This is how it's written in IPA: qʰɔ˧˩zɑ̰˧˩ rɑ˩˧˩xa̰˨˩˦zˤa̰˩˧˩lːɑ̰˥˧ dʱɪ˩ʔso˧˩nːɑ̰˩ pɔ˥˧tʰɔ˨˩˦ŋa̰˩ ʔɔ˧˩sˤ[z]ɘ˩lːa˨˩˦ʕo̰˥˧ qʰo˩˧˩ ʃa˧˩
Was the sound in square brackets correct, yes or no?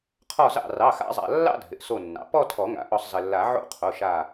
yes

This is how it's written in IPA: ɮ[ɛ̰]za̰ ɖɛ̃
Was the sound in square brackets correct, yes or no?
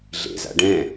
no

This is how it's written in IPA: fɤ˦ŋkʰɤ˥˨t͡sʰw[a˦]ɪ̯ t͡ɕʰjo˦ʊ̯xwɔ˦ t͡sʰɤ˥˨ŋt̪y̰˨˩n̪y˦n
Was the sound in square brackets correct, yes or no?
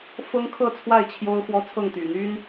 no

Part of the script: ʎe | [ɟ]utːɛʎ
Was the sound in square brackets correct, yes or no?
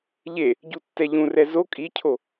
yes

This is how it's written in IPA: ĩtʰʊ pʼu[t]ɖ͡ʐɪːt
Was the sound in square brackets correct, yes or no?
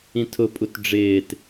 yes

